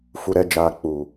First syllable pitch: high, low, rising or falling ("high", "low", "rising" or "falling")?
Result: low